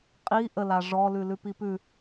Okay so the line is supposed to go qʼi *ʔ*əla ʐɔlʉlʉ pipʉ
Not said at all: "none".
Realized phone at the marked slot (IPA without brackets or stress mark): ʔ